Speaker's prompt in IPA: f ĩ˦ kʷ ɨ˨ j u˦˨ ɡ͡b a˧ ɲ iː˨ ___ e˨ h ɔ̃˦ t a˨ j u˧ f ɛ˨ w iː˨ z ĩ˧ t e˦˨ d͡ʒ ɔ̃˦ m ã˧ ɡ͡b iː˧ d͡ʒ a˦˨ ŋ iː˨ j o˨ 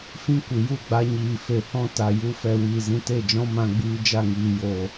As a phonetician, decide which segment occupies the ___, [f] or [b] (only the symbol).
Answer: f